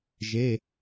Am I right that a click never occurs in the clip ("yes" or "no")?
yes